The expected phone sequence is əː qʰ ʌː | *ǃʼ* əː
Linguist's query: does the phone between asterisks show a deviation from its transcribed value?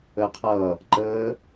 yes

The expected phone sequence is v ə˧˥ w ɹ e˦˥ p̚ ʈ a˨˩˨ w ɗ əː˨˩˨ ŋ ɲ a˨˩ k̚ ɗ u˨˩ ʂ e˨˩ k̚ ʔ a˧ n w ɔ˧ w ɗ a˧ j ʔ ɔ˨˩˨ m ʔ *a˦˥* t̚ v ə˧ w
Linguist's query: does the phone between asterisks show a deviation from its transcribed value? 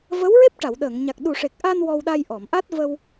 no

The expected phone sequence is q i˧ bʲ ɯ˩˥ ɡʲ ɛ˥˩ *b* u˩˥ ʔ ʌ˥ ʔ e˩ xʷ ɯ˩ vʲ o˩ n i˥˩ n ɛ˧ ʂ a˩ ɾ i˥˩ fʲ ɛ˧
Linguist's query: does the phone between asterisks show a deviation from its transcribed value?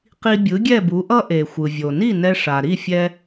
no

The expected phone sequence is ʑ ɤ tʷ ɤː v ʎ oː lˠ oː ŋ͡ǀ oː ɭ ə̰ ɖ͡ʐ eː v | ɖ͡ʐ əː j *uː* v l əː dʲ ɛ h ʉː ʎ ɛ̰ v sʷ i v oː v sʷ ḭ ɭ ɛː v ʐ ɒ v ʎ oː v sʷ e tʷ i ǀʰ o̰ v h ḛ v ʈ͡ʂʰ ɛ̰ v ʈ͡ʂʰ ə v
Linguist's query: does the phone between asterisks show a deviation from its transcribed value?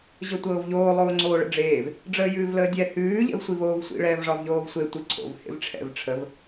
yes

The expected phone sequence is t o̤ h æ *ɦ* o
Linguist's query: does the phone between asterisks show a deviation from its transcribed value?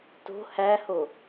yes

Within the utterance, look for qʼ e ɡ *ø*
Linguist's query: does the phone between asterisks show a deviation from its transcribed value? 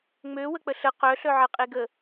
yes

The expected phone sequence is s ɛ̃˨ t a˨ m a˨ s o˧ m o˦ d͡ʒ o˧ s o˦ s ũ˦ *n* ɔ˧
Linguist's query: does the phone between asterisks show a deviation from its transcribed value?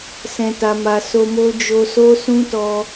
yes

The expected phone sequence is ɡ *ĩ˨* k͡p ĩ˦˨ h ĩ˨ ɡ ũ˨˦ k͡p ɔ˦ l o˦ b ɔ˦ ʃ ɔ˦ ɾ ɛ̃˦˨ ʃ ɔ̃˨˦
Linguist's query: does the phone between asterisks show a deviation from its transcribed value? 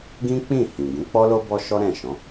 yes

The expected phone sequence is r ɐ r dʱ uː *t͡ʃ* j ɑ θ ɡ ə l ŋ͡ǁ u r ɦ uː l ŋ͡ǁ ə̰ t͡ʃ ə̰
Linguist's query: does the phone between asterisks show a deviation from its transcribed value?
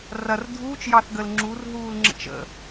no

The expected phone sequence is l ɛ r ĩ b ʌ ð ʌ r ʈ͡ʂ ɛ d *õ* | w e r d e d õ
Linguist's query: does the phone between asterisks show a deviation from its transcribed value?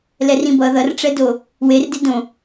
yes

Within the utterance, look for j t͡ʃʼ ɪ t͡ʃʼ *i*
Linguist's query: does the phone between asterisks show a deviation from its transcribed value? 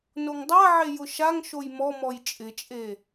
yes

